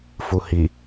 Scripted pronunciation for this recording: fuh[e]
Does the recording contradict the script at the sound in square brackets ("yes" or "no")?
yes